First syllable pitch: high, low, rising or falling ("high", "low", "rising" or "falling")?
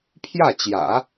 falling